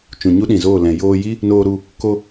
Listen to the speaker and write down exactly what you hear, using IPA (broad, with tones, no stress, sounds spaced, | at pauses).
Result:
t͡ʃ ũ˨ ɲ u˦ ɗ ĩ˨ z oː˦˨ l ɛ̃˨ j oː˧ j i˦ | n oː˧ ɾ u˧ | k o˧